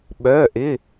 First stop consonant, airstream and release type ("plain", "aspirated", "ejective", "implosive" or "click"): implosive